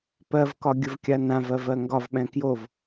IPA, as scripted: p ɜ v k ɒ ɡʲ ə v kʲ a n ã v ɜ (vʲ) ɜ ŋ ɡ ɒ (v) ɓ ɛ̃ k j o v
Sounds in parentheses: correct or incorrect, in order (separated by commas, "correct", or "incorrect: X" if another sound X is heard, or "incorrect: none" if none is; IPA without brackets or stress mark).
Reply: incorrect: v, correct